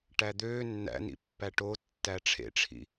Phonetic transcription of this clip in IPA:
ʈ æ d̪ øː nː æ̰ n ḭ pː æ ʈ o tː æ ʈ͡ʂʰ ḛ ʈ͡ʂʰ ḭ

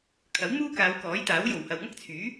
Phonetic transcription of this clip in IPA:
kʰ ɐ˨˥ w m uː˥ k aː˨˧ w k ɔː˨˥ j t̪ aː˨˥ w j o˨˩ w h ɐ˨ w ŋ ɐ˥ k̚ t͡sʰ yː˨˥

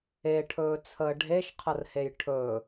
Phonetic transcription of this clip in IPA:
e ʈʰ ɵː t͡sʰ əː ɖʱ e ʃ qʰ ə r h e j ʈʰ ɵ

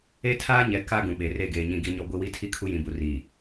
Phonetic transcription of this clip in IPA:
e˦ tʰ aː˦ ɲ ɛ˨ k a˦ ɡ ũ˨ ɓ e˨ r e˦˨ ɡ eː˨ ɲ ĩ˨ ɡ i˨ ɲ ɔ˨ ɡʷ i˦ w i˦ tʰ i˦ kʰ u˦ j ĩ˨ b u˨ r iː˨

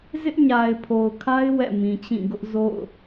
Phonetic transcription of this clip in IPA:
z ɪ˦ ʔ ɲ a˨ ɪ̯ pʰ o˨ ʊ̯ kʰ a˦ ɪ̯ w ɛ̰˦˨ m ĩ˨ t͡ɕ ĩ˦˨ ɡ ʊ˦ ʔ z o̰˦˨ ʊ̯

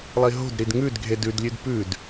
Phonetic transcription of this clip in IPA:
lˠ i ɦ o̤ d ɾ i d ŋ ʉ d ɡʱ e d ʉ d lʲ ʉ d p ʉ d

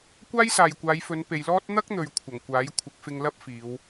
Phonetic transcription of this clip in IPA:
kʷ aː˥ j s aː˨ j kʷ aː˨˧ j f ɵ˨˧ n p e˨ j l ɔː˥ t̚ n̪ ɐ˥ k̚ n̪ ɵ˨ ɥ kʷʰ ɐ˨˩ ŋ kʷ aː˨˥ j kʷʰ ɪ˨˥ k̚ f ɪ˧ ŋ l ɐ˥ p̚ f iː˨˧ w

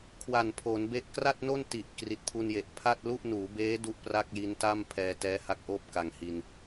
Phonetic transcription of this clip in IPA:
kʰ w a˨˩ n pʰ o˩˦ n b e˦˥ ʔ k r a˥˩ t̚ n o˥˩ n t i˨˩ ʔ k r i˨˩ t̚ pʰ u˧ n j e˨˩ ʔ pʰ a˥˩ t̚ l u˥˩ ʔ n uː˩˦ b eː˦˥ d u˥˩ ʔ p r a˥˩ k̚ j i˦˥ n t a˥˩ m pʰ ɛː˧ t ɛː˦˥ h a˦˥ k̚ ʔ oː˥˩ p̚ k a˨˩ ŋ h i˧ n

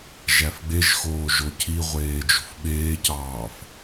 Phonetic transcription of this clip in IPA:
ʒ æ f ɡ͡b e ʒ x oː ʒ o cʰ i ʁʷ eː d͡ʒ ṳ f ɓ eː c ɑː f

